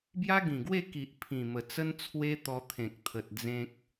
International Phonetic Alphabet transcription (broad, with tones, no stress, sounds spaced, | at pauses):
b j a˦ ɡ ĩ˨˩ ɡ w e˥˧ k i˨ ʔ pʰ ĩ˨˩ m ə˨˩ t͡s ə˦ n t͡sʰ w e˦ t̪ ɔ˧ t̪ʰ ẽ˨ k̚ t̪ʰ ə˨ t̚ d͡z ẽ˦ k̚